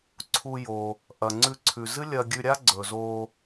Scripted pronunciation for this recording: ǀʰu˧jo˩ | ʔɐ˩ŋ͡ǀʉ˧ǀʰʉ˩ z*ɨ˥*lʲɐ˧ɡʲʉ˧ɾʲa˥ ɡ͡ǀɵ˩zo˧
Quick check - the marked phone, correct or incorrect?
correct